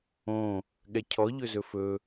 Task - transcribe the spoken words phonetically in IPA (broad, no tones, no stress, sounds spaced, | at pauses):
õ | ɠ ɛ cʰ ɔ ʎ ɵ z ɵ f ɵ